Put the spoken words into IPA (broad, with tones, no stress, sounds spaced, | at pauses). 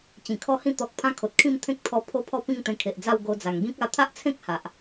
t͡ɕ ĩ˨˩ kʰ ɔ˦ h ĩ˦ t̪ ɔ˨ k̚ pʰ ã˦ kʰ o˨ t̚ kʰ ĩ˥˧ m t̪ʰ ẽ˦ k̚ t̪ʰ ɔ˧ pʰ o˦ pʰ ɔ˥˧ p ĩ˥˧ ŋ t̪ ẽ˧ kʰ e˨ ʔ d͡z a˥˧ w ɡ o˧ d͡z a˨˩ ŋ ɡ ĩ˦ k̚ a˧ t̪ʰ a˦ ʔ t͡sʰ ẽ˦ k̚ h a˨ ʔ